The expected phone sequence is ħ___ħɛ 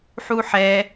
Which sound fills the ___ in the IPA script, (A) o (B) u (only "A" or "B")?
B